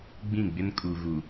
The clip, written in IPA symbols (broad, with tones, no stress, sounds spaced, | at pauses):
ɡ͡b ĩ˦˨ ɡ͡b ɪ˦ n kʼ u˨ ɣ u˨